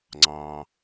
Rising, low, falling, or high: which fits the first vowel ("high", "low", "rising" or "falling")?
low